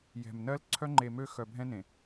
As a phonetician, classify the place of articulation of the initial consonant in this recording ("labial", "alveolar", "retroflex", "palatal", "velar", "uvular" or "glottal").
palatal